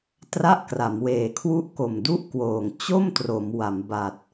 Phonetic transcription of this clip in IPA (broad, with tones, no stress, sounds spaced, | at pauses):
t r a˥˩ ʔ k r a˩˦ m w eː˩˦ kʰ w u˦˥ ʔ k o˨˩ m d u˦˥ ʔ k w oː˨˩ ŋ t͡ɕ o˥˩ m t r o˩˦ m w a˩˦ m b a˨˩ t̚